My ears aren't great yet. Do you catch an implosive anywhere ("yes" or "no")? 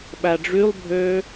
yes